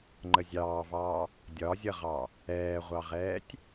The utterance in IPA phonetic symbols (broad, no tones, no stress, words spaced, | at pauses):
ŋ͡ǃəzʲɑːvɑː | dʲɒzʲʌʁɑ | ɛːʁʷɑʁɛːtʲ